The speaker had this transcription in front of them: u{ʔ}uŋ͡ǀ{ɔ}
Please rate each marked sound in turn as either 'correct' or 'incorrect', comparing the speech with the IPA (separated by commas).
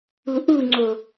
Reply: correct, incorrect